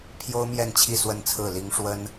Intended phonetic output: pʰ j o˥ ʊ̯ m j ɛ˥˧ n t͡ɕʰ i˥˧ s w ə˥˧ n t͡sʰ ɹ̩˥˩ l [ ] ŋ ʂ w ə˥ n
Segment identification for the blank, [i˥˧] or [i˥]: i˥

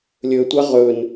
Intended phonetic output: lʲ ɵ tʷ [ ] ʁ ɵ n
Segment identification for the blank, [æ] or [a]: a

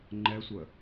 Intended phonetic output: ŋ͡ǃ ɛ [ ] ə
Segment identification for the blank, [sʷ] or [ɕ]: sʷ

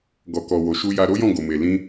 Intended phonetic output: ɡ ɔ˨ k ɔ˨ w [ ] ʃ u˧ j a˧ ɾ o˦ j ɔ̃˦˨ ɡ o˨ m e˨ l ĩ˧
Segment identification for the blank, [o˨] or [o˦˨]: o˨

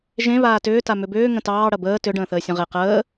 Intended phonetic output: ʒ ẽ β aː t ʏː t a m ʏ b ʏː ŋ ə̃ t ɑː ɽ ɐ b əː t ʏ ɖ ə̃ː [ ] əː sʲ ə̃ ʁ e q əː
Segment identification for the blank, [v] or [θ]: θ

